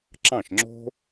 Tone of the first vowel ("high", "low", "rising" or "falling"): falling